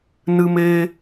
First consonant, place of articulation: alveolar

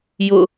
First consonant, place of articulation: palatal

